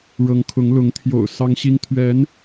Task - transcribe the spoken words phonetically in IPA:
ɻ ɤ˨˦ ŋ kʰ ʊ˨˦ ŋ l ʊ˨˦ ŋ t̪ʰ j o̰˨˩ ʊ̯ s ɑ˦ ŋ ɕ i˦ ŋ t̪ʰ ɥ ɛ˨˦ n

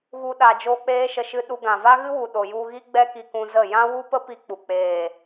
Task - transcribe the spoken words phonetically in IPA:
ɣ u˦ ɗ a˧ d͡ʒ oː˦ k͡p eː˦ ʃ ə˧ ʃ ɨ˧ ɗ u˧ ɡ ã˨ v a˦ ɣ ɨ˦ w u˨ ɗ o˨ j u˧ ɣ i˦ ɡ͡b ɛ˦ k i˧ k ũ˧ z ə˦˨ j ã˦ w u˦ p ə˦ p i˧ k͡p u˨ k͡p eː˨

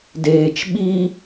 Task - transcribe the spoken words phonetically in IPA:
d eː t͡ʃ ɓ i

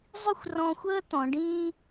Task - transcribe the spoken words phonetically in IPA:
zˤ y˥˧ xʷ r ɔ̃˧ xʷ əː˥ t̪ ɔ̃˩˧ ɖ ĩː˥

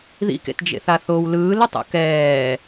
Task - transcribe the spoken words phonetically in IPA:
ð ḭ k ḛ t d͡ʒ ḛ θ a θ o w l ɯː l o tˤ o̰ k ɛː

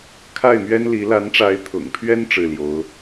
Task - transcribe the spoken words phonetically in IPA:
kʰ a˥˩ ɪ̯ m ɥ ɛ˥ n l i˧˥ l a˧˥ n ʈ͡ʂ a˧˥ ɪ̯ t̪ʰ ʊ̰˨˩ ŋ pʰ ɥ ɛ˥ n ʈ͡ʂ ɻ̩˥˩ l j o˧˥ ʊ̯

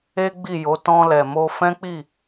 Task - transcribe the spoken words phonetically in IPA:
e˦ ɡ͡b i˦˨ j o˨˦ t ɔ̃˧ l ɛ˨ m o˧ f ɛ̃˦ k͡p i˦˨

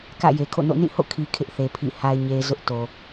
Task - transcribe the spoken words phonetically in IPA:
k ä̰˦˨ j e˨ kʰ o̰˦˨ n o̰˦˨ n ĩ˦˨ h o̰˦˨ kʰ i˨ kʰ ɪ˦ ʔ θ e˨ pʰ ḭ˦˨ h a˦ ɪ̯ ɲ e˦ z ʊ˦ ʔ t o˨

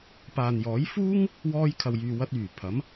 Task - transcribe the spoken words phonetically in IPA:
p aː˨ n j ɔː˨˥ j f uː˥ ŋ | w ɔː˧ j kʰ ɐ˨ w j yː˨ w ɐ˧ t̚ yː˨˩ pʰ ɐ˨˥ m

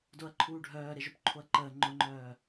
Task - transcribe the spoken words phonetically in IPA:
d o ɐ̯ ǃʰ uː ɖʱ œː ɾ e ʒ œ p ǃʰ o ɐ̯ ǃ əː ŋ͡ǃ ʊ ŋ͡ǃ œː

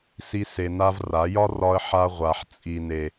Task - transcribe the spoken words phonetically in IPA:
s i˧ s e˨ n a˧ v r a˨˦ j ɒ˦ r ɒ˧ ə̯ ħ a˧ ʁʷ a˨ ħ t͡sʼ i˨ n e˨

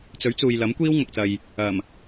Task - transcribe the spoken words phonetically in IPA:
t͡s ɵ˨˥ ɥ t͡s uː˨ j l ɐ˨˥ m kʷ iː˥ w ŋ ɐ˨ k̚ t͡s ɐ˨ j | ɐ˨˩ m

